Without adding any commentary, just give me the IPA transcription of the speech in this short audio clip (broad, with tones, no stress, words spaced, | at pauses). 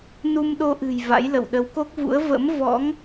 nu˧mɗo˧ʔɨ̤˨˩j va̰˧˥jlə̰˧˨w ɗə˨˦wko˦˥k̚vṵ˧˥ə̯ və̰˧˥m vɔ̰˧˥ŋ